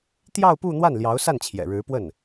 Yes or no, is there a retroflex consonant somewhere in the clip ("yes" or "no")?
yes